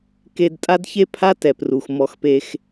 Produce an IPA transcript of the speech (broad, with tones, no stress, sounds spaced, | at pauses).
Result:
k e˧ d tʼ a˦ d ç e˦ pʰ a˦ t ɛ˨ p r u˨ x m ɔ˧ x p e˧ x